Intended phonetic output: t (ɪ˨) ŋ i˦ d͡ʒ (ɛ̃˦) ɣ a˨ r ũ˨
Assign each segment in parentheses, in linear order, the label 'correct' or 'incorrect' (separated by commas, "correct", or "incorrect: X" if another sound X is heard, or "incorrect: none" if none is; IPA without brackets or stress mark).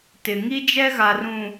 correct, incorrect: ɛ˦